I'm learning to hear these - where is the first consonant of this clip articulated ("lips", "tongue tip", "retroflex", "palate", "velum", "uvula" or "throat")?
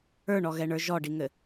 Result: retroflex